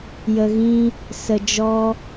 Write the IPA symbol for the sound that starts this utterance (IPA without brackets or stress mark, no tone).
j